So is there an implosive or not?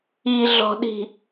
yes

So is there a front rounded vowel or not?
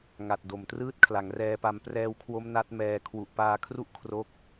no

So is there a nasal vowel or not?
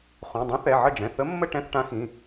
yes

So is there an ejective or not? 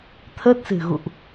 no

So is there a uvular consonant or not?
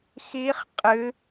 yes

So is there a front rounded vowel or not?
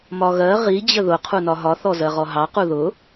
no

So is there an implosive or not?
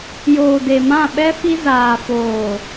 yes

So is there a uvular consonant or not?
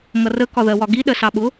no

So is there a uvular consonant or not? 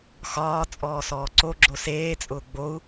no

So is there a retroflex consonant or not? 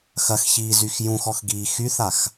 no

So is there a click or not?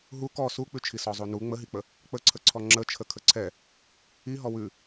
yes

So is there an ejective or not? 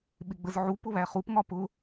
no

